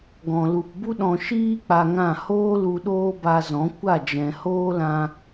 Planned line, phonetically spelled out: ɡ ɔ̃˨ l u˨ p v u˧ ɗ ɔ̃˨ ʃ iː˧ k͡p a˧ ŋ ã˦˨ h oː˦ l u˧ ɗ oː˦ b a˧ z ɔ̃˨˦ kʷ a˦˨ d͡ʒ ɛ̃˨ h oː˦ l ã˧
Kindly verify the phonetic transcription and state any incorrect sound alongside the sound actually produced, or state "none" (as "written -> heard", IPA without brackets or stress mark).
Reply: v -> b